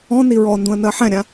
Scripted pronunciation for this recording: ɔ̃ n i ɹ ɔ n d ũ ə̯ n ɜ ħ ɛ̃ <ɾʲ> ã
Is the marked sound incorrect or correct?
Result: correct